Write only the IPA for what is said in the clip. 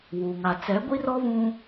w uː˨ ŋ a˨ t͡s ɛ˨˦ ɡʷ i˦ r ɔ˦ β ũ˦

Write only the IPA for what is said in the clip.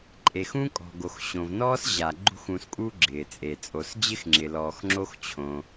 ǃʼ e˩ x ũ˦ kʼ ɔ̤˩ ɡ o˩ x ɕ õ˩ v n ɔː˥ s ʑ a˩ ɡ͡ǃ ṳ˦ x ũ˨ s kʼ u˦ ɡ͡ǁ ɪː˩ t͡sʼ e˩ t͡sʼ o˨ s d͡ʑ ɪ˥ x ŋ͡ǁ ɪ˩ l ɔː˩ x ŋ͡ǁ o˦ x t͡ɕʰ õ˨

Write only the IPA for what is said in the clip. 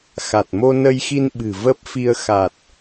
x a˨˩ t̚ m o˧ n ə˧ j x i˧ n ɓ ɨ̤˨˩ v ə˦˥ p̚ f i˧ ə̯ x a˨˩ t̚

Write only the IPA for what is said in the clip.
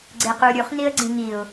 ɡ͡ǀ e q u ɾʲ u χ n i ə̯ ɡ͡ǀ ĩ ŋ i ʊ̯

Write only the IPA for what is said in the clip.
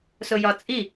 s ʊ j ɒ t͡sʼ i

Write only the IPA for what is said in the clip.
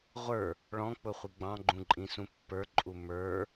ʁʷ ə˞ | ɭ ɔ̃ k͡p ʊ χʷ i ɡ͡b ɑ̃ ɡ͡ǃ ũ ǃʼ ĩ s ũ pː ə˞ ǃʼ u m ə˞

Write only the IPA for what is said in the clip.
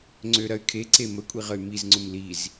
ŋ͡ǀ ø ɾ ɐ y̯ kʰ e ǀ e m ə kʷʼ i ʁ ə y̯ m i z ŋ͡ǀ ʊ m l i z

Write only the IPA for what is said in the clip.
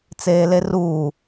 t͡s eː l e r uː

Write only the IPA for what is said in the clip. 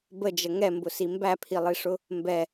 b ə d͡ʒ ə ŋ ɛ m b ʊ s i m b æ pʰ i lˠ i ʂ ʊ | m b ɛ

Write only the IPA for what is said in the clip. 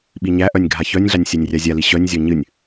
ɓ i ɲ æ ʔ œ nʲ ɡʱ a ç œ nʲ ɮ a nʲ sʲ a nʲ rʲ a zʲ a l i ɕ œ nʲ zʲ ɔ ɲ ɨ nʲ

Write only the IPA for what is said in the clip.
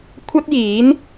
kʷʰ ɐ˥ t̚ j iː˨˥ n

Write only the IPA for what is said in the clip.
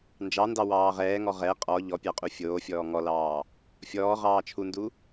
n d͡ʒ ɑ n d ɑ w ɑː ʁ ɛː ŋ ɔ ʁ ɛ qʼ ɔ ʎ ɔ pʲ ɑ qʼ u fʲ oː fʲ ɔː ŋ ɔ l ɑː | fʲ ɔː ʁ ɑː t͡ʃʰ u n d u

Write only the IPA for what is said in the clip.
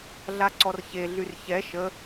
ɮ a ǀ ɔ r ç e ɮ y r ç ɛ ʃ ə

